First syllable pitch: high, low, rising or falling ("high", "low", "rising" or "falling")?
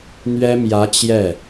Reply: high